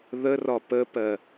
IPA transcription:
ð ə r ɒ p ə p ɜ

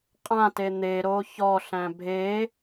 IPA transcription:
qʼ ã t e n̪ e ɾ o ç ɔ ɬ æ̃ bʱ e

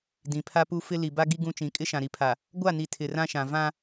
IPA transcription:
d ĩ˨ pʰ a˦ p u˦ f ɪ˦ l i˨ b a˦ ɡ i˦ ɡ ũ˦ t͡ʃ ĩ˨˦ kʼ ɪ˦ ʃ ã˨ ɾ i˨ pʰ a˨ | ɡʷ a˦˨ n i˨ tʰ ɪ˨ r ã˦ ʃ ã˨ v ã˦

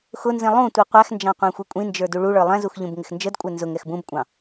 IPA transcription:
x ʊ n z ĩ lˠ ũ tʷ i qʷ æ x n d͡ʒ ɑ̃ qʷ æ̃ xʷ i kʷʼ ĩ n d͡ʒ ə˞ d u ɭ u ɭ ə˞ lˠ ɛ̃ z u x ʎ ũ b ŋ ɪ x n d͡ʒ ə d kʷʼ ɛ n z ʊ ŋ ɛ x b ũ b kʷʼ ɑ̃

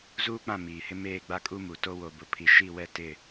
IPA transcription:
z uː˦ k͡p ã˦˨ m iː˨ h ɪ˦ m eː˦˨ ɡ͡b a˦ kʼ u˦ m u˨ t o˦ w o˨ b ʊ˨ pʰ i˨ ʃ i˦˨ w ɛ˦˨ t ɪ˦˨

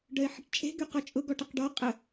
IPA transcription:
ɖ œ ɪ̯ ħ ə ʈ t͡ʃʼ e̤ ɡ y q ɔ t͡ʃʼ ʊ ɡ ɔ ʈ ə q ɖ ɔ qʼ ə

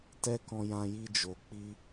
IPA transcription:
t ɛ˦ k ɔ̃˧ j ã˧ j i˧ d͡ʒ o˨ k͡p i˧

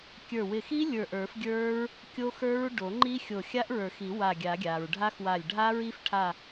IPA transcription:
kʲ ə˞˧˩ w ɪ˧˩ x i˦˥ lʲ ə˞˧˩ ʔ ə˞˨˩˦ f ɡʲ ə˞˦˥ ɹ | kʲ o˦˥ x ə˞˦˥ ɹ ɖ o˨˩˦ ŋ͡ǃ i˦˥ xʲ o˧˩ xʲ a˦˥ ʔ ɹ ə˞˨˩˦ x i˨˩˦ w a˧˩ ɡʲ a˨˩˦ ɡʲ a˩ ɹ ɖʱ a˦˥ x w a˧˩ lʲ ɖʱ a˦˥ ɹ i˦˥ f ʈʰ a˧˩

